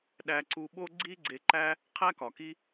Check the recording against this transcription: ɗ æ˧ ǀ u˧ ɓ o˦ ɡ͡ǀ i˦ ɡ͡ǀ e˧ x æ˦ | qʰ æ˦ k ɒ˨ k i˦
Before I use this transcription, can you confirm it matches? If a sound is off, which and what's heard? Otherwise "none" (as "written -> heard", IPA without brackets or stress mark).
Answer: x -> ǃ